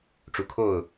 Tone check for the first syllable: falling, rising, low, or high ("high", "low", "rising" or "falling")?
low